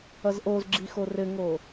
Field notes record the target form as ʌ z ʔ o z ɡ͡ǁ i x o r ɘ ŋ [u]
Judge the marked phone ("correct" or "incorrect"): incorrect